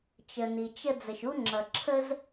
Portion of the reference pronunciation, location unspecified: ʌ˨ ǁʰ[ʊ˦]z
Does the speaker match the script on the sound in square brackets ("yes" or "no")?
no